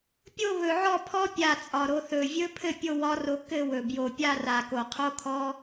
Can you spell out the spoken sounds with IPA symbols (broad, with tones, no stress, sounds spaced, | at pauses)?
pʲ o˥˧ β ɵ˨˩ ʕ ɔ˥˩ pʰ ɔ˦˥ pʲ a˨˩ t͡sʼ ɒ˨˩ ɾ o˧ θ ɵ˨˩ vʲ ɵ˦˥ pʰ ɘ˥˩ pʲ o˥˧ w ɒ˦˥ r o˧ k ɘ˥˧ w ɵ˨˩ b j o˨˩ pʲ a˥˧ r a˨˩ k o˨˩ qʰ o˦˥ kʰ ɔ˦˥